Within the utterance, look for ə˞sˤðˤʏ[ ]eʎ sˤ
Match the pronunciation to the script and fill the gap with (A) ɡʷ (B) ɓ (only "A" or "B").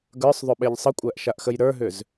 B